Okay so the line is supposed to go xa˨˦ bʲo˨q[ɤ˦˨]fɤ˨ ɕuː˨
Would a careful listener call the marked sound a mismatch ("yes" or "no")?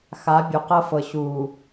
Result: yes